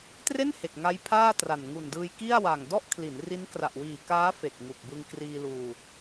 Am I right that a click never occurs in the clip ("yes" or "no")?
yes